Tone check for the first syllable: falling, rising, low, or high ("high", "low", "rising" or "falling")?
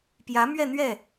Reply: rising